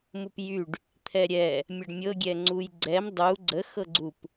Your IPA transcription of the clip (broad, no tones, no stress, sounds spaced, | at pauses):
m u p j y ɖ | t̪ʰ ɛ ɾʲ ɛ | mʲ ə ɖ mʲ ɤ ɡʲ ɛ ŋ͡ǀ u j ɡ͡ǀ ɛ m dˤ u ɡ͡ǀ ə x ɤ ɡ͡ǀ u p